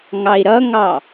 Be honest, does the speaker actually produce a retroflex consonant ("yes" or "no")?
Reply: no